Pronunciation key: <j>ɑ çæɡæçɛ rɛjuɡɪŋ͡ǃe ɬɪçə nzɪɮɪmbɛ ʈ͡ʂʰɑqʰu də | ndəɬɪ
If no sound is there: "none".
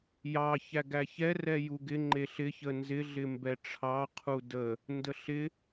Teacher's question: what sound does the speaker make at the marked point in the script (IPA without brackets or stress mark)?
j